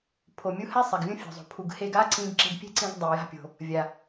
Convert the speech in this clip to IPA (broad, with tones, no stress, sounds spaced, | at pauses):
pʰ o˩ mʲ u˧ h ɛ˥ sˤ e˩ ɡ vʲ õ˥ fʲ o̤˩ zˤ o̤˩ pʰ u˩ ɡ h e˧ ɡ a˥ ǀ ĩ˧ ɡ ǁ e̤˧ ɡ pʲ e̤˥ ǀ ĩ˧ ɡ dˤ e˩ j a̤˧ pʲ o̤˩ | vʲ a˩